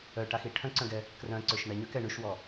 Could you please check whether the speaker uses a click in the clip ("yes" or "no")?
yes